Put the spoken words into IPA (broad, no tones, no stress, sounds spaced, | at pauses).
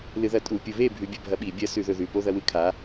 l ɨ ð ɐ tʼ u pʲ u β e bʱ ʉ bʲ ɐ bʱ ɐ ɓ i bʲ ɐ s ʉ ð ɵ ð ʉ p o ð ɐ w ɨ kʰ a